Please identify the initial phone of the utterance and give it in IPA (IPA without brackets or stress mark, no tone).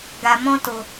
ɡ